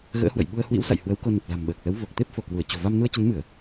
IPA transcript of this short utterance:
ɣə̰ː˧˥hwə̰˧˨j ɓu˧ə̯hwḭ˧˥wsa̰˧˨j hwə˨˦wko˧nə˨˩p̚ la̤˨˩mɓəː˨˩k̚lə˨˦w vo˨˩k̚t̪e˦˥p̚ fo˧˩kwu˧˩ə̯t͡ɕo̤˨˩ va˧mnu˧ə̯t͡ɕə˨˦nmɨ˧˩˨ə̯

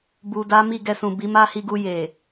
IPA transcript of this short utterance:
bu˨da˨˦ mi˦˨ɡɛ˧sũ˨bi˨˦ ma˦hi˧ɡu˧ je˨

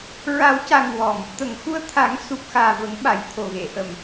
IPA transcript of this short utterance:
ɹa˨˩˦wca˨˩ŋ wɔ˨˩m | t̪ə˨˩˨ŋxu˧ə̯t̪ʰa˨˩˦ŋ su˨˩p̚xaː˨˩ və˨˩˦ŋɓa˨˩˨jt̪ʰo˨˩ɣe˨˩˨ ʔə˨˩˨m

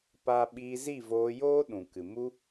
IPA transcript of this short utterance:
pa˦ ɓiː˧zi˦˨voː˧joː˦ ɗũ˨kɨ˨ mu˦

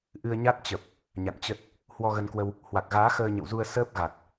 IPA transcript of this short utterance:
ʔɨ˧ə̯ɲa˦˥t̚ t͡ɕə˨˩p̚ | ɲa̰˧˨nt͡ɕə˦˥t̚ | hwɔ˧ɣə˧nkwə˧w | hwa˨˩k̚ɣaː˨˦ xəː˧ɲə̰˧˨wzu˧ə̯ səː˦˥p̚ ɣa˨˩t̚

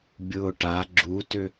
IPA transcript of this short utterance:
bʲʊːʈa ɡ͡ǁutʏ

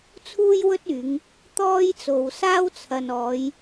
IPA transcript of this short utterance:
t͡sʰuː˥jwɵ˥t̚yː˨˧ŋ | t̪ɔː˥jt͡so˨wsaː˥w t͡sʰɐ˨nɔː˨˧j

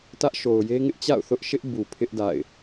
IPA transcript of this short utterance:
tä˦ʔʃo˨ʊ̯je˦ŋɪ˦ʔ t͡ɕa̰˦˨ʊ̯θʊ˦ʔʃɪ˦ʔ bu˨pʰɪ˦ʔ da̰˦˨ɪ̯

